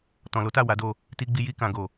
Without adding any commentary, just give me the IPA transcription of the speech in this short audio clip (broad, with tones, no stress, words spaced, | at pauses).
tɔ̃˨lo˨˦ta˦˨ wa˨˦do˦˨ | ti˧ɡ͡bi˧ ji˧kã˨ ɡo˨